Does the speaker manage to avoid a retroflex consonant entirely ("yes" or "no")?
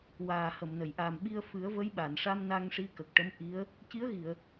no